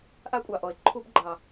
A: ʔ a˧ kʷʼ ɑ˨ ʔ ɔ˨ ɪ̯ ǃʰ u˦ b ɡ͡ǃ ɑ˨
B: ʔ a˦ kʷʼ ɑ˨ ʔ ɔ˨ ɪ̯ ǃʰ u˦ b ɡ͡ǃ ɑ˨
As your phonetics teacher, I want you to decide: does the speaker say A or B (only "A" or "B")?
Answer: B